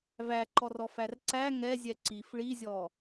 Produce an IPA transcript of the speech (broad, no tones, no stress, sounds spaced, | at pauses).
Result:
v æ ǃ ɔ r ɔ f æ r ǀ æ ŋ ɛ zʲ ɛ ǀ i f ɭ i zʲ ɔ